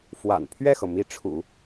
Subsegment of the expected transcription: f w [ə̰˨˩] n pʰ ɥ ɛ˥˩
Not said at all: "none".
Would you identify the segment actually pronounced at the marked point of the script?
a̰˨˩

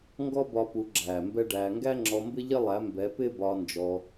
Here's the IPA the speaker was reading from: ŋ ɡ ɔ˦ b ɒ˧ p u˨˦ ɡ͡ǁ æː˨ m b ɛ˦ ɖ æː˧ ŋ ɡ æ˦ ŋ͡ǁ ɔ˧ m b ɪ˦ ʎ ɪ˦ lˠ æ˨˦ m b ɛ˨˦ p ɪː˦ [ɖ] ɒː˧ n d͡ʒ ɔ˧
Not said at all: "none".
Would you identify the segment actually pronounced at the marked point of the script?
b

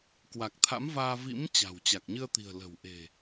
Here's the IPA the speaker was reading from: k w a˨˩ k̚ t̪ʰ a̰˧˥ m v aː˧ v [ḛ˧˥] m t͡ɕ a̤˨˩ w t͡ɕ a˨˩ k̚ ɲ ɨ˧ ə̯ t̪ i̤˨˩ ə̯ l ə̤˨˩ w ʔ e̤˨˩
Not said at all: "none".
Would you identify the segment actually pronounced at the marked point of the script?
ḭ˧˥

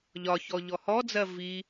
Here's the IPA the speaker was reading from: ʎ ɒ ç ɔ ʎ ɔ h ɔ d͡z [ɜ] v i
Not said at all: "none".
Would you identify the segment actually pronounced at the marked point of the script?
ɜ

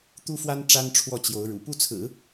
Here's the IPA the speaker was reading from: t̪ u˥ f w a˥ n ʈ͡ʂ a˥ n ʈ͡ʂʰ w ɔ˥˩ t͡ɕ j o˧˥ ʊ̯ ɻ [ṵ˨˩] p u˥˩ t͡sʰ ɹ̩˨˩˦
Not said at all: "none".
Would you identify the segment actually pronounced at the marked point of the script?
ṵ˨˩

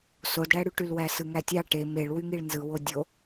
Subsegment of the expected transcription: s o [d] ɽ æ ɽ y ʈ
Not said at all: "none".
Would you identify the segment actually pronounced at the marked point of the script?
d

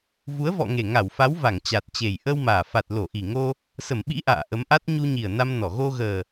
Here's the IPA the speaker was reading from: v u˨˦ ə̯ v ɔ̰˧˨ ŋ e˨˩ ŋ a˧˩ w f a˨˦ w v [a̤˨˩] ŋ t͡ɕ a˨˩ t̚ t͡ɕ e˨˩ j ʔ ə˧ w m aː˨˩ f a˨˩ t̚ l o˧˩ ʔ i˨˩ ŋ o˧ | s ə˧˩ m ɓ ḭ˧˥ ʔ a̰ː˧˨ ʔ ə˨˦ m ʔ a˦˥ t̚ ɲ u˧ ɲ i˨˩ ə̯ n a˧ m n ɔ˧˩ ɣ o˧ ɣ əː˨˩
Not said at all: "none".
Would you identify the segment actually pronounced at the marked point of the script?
a˧˩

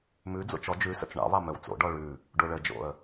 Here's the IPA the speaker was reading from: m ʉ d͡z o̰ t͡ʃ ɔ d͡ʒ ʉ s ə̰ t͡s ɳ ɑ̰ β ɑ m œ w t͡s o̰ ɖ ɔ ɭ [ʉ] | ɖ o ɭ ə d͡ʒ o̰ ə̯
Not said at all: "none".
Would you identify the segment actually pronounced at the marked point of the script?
ʉ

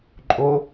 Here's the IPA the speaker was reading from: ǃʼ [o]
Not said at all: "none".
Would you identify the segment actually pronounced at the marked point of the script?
o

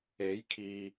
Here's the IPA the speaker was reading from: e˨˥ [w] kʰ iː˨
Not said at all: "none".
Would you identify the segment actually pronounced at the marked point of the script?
j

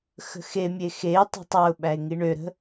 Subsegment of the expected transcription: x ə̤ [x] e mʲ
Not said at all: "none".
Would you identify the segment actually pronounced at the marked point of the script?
x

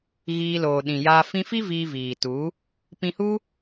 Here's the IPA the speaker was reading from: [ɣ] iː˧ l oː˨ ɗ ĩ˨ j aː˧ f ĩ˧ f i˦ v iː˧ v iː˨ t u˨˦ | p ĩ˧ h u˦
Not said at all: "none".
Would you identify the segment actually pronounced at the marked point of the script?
ɣ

